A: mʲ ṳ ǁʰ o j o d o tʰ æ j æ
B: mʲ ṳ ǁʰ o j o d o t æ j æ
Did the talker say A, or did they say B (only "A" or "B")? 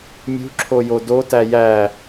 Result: B